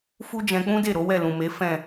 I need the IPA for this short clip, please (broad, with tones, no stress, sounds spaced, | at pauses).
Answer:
f u˦ d͡ʒ ɛ̃˧ k͡p ũ˦ d e˦˨ ɾ o˨˦ w ɛ˦˨ l ũ˨ m e˨˦ f ɛ̃˦˨